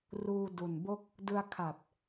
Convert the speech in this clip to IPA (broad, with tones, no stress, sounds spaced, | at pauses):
r uː˧ d u˨˩ n b o˥˩ k̚ | d ɯ˧ a̯ kʰ a˨˩ p̚